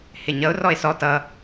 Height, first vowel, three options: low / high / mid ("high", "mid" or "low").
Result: high